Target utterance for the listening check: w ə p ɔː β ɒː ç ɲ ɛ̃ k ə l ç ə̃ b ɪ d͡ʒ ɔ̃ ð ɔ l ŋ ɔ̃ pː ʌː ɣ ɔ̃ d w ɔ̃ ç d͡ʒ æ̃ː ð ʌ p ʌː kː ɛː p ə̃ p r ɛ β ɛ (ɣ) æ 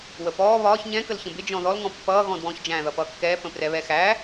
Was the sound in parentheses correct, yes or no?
no